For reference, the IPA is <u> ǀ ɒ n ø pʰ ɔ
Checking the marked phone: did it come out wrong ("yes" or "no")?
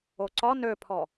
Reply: yes